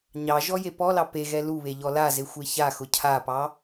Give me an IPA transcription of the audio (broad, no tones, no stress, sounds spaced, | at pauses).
ɲ ɑ ʒ ɔ j e p ɔ l ɑ p e ɣ ɛ l u β e ʎ ɔ l a z e xʷ e ç a x ʊ cʰ a p ɑ